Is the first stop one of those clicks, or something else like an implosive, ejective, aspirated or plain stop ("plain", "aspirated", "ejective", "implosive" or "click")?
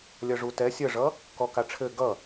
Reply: plain